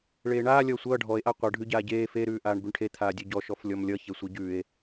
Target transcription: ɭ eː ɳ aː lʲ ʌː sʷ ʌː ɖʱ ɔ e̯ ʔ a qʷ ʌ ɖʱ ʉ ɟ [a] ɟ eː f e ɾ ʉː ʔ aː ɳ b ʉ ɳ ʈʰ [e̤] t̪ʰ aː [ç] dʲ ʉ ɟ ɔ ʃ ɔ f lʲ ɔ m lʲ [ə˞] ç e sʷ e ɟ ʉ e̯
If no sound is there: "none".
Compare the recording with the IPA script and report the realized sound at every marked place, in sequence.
aː, e, none, ʌ

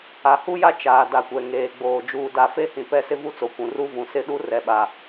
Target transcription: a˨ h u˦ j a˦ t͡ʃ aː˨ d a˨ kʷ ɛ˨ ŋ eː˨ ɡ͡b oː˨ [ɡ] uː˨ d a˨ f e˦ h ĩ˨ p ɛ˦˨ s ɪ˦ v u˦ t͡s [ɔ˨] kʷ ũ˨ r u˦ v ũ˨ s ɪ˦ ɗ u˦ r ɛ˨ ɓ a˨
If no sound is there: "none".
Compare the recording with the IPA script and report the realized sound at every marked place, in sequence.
d͡ʒ, o˨

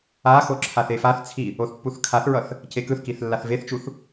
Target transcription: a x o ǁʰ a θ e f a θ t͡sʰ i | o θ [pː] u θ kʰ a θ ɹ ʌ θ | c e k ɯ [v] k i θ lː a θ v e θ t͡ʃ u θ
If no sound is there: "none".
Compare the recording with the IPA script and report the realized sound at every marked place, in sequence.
pː, θ

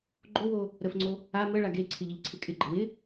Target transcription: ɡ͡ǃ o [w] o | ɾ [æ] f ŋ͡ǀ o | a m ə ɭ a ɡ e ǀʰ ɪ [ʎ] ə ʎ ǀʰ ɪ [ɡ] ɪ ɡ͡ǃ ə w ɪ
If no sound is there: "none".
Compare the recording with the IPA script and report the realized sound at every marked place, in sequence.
w, ə, ʎ, kʼ

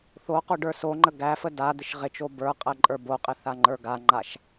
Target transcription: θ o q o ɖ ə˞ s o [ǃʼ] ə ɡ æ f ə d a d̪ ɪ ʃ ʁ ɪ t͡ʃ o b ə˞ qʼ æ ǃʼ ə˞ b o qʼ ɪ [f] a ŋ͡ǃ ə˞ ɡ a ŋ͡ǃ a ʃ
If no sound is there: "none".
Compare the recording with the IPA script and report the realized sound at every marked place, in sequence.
ŋ͡ǃ, θ

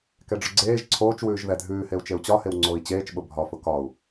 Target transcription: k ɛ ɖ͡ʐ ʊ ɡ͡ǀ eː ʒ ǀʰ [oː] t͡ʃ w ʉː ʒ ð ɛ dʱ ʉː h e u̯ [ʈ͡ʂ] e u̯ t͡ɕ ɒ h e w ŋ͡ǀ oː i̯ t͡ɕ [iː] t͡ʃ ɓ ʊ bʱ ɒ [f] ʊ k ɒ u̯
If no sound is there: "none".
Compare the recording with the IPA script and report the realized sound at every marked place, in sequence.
oː, t͡ʃ, eː, f

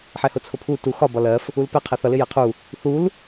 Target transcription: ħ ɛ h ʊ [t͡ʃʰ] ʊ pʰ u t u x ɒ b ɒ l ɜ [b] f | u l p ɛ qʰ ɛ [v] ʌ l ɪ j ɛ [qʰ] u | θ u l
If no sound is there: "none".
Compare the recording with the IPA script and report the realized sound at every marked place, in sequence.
t͡sʰ, none, θ, qʰ

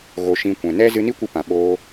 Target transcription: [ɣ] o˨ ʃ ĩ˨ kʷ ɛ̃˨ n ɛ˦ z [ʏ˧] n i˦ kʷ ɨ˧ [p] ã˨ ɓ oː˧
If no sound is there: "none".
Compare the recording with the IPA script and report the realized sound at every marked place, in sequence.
ɣ, ɨ˧, p

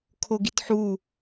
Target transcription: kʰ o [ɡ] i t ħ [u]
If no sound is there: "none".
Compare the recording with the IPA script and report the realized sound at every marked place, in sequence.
ɡ, u

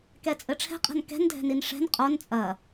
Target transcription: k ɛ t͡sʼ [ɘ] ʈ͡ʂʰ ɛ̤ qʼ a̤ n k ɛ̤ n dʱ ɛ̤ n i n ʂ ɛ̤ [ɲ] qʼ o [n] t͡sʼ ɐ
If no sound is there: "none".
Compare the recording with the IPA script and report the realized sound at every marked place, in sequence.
ɘ, n, n

